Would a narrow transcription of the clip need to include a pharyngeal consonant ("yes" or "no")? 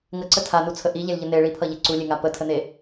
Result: no